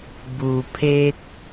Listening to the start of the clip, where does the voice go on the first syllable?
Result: low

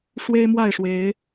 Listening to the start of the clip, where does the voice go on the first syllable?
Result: high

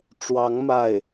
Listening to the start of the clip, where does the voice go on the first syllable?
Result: rising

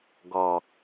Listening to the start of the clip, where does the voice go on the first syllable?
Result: low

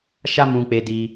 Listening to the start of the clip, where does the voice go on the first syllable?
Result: high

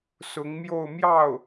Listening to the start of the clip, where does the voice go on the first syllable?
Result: rising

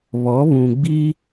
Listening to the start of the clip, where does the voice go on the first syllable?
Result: rising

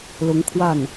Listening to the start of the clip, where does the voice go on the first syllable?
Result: rising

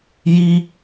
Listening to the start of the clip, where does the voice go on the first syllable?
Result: high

